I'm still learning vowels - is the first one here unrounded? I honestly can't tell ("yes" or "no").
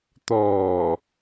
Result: no